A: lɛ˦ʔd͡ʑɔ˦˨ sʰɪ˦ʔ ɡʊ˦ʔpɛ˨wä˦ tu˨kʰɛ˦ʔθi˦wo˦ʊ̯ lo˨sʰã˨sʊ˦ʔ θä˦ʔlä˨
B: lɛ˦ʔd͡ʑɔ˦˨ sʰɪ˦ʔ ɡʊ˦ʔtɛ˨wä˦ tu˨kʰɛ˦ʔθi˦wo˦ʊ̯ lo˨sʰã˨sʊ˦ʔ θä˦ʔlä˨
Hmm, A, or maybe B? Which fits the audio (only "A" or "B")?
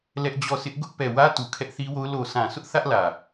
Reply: A